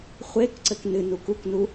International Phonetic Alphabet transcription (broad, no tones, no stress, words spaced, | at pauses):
χʷekǀɘk nɨnuk uknu